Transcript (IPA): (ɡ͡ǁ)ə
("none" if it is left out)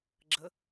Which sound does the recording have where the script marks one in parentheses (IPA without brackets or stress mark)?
ɡ͡ǁ